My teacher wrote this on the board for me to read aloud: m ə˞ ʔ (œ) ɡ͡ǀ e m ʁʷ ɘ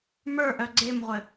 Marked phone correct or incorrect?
correct